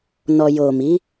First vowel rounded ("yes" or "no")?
yes